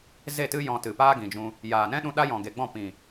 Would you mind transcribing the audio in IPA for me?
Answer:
ze˦˨tɨ˦ jɔ̃˧tɨ˨paː˦ ɡĩ˨d͡ʒũ˧ | jaː˨nɛ̃˦ɗũ˧ ɗa˦jɔ̃˨ɡe˨ɡ͡bɔ̃˦˨ pĩ˨

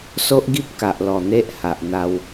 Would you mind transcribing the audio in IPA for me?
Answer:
so˦ʔ ɡi˦p̚ka˨ʔ lɔ˨˩ n̪e˦ʔha˨ʔn̪a˧w

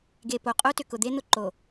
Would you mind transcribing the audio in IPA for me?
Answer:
ɡe˨po˨ qʼo˦tʏ˨ kʊ˨d̪e˦ n̪ʊ˦ǃo˨

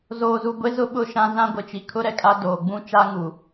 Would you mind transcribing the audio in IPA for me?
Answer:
zoː˨zu˨ɡʷe˦ zʊ˦ɓʊ˦˨ ʃã˦ zã˦ɡʷɪ˨t͡ʃi˨ kʰʊ˦ ɾɛ˨kʼa˦ doː˨ ɡ͡bũ˦t͡ʃa˦ŋu˨

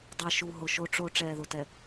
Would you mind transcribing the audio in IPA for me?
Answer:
dˤɛ˨ʃu˨ɦʊ˨ ʃo˨ʈ͡ʂo˨ ʈ͡ʂɛː˨ðʊ˨tɛ˨

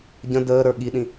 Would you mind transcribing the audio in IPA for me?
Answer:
ɟə̃ dəːɾə˞ ɠiɗĩ

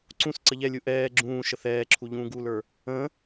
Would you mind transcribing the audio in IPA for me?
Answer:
ǀũs ǀəʎɛlʲu ʔɛː ɡ͡ǁũːʃəθ ɛːǁʰu ʎũːɡulə˞ | ə̃

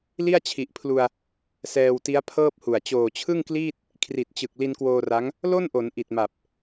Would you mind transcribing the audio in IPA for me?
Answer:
li˥˩a̯t͡ɕʰi˨˩ʔpʰlu˧a̯ | sɛː˧wti˦˥a̯pʰɤː˥˩p̚hu˨˩a̯ t͡ɕoː˨˩t͡ɕʰɯ˥˩ŋkliː˥˩t̚ | kʰri˨˩t̚t͡ɕɯ˨˩k̚ li˧nkwoː˧ra˦˥ŋ | lo˥˩nʔo˩˦n ʔi˨˩t̚ma˨˩p̚

